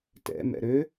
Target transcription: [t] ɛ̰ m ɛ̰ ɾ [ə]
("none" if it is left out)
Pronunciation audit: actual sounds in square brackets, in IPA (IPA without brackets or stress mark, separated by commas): t, ø